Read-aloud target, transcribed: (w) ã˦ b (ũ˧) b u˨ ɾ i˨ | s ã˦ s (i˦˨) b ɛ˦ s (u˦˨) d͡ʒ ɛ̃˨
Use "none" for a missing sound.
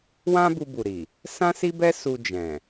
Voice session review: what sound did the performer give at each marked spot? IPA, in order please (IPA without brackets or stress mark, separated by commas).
w, u˧, i˦, u˧